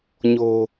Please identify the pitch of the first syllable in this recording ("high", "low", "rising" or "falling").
low